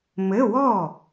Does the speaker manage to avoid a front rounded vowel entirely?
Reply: yes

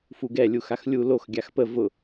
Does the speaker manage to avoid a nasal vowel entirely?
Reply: yes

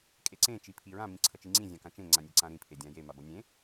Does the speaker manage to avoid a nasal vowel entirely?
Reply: no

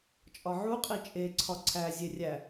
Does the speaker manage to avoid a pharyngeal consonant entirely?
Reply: no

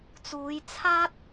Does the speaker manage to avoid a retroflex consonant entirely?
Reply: yes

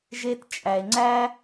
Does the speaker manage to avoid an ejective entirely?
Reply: no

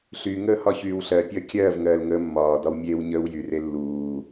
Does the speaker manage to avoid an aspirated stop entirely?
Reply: yes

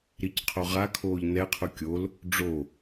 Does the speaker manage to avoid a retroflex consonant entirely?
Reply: no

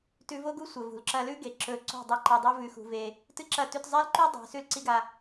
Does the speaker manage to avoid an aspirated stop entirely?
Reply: yes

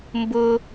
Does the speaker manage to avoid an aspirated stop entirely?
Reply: yes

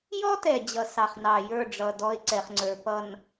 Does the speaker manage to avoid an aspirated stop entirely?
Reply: yes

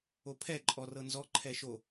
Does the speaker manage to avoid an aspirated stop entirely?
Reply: no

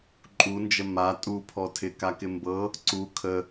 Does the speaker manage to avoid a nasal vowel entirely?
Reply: yes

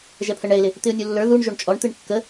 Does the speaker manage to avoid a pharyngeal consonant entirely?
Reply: yes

